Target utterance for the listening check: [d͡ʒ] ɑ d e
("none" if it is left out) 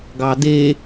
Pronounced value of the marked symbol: ɡ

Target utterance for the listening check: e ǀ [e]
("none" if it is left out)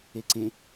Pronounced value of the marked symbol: ẽ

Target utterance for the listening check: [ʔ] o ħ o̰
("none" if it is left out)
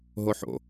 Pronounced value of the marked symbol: ɦ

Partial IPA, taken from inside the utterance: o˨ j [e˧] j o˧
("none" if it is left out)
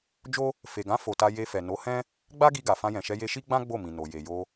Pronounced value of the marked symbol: e˨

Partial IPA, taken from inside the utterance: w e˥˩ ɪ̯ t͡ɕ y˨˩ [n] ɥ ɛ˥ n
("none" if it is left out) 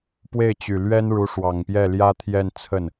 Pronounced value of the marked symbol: l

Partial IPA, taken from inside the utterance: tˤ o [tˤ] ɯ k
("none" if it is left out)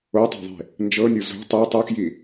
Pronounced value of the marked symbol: tˤ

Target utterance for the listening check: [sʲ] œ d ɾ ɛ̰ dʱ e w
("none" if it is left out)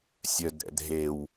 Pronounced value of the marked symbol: sʲ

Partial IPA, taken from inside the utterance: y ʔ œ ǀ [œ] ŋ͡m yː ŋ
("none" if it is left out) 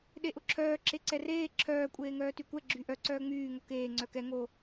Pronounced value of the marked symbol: œː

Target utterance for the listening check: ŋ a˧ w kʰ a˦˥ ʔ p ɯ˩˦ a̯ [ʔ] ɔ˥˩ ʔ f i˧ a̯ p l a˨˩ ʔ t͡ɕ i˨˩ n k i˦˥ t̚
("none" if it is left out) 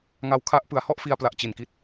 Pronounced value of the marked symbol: h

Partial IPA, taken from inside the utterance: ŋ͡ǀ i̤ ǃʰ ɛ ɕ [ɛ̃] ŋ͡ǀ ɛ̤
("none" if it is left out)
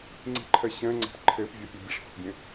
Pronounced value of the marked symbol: ɛ̃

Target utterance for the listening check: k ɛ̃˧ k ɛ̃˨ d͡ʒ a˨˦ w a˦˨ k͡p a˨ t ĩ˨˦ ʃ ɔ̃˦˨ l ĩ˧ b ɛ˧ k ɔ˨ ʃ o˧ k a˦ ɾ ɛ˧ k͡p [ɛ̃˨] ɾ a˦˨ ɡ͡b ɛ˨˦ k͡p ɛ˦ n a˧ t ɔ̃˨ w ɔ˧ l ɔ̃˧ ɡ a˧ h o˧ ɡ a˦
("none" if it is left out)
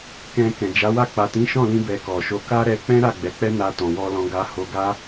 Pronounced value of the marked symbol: ɛ̃˦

